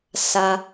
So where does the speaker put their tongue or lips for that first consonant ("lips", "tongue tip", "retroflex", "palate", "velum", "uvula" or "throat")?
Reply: tongue tip